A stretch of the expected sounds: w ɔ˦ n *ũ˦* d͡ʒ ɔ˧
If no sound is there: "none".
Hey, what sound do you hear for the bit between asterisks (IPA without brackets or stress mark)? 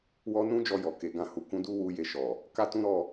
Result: ũ˦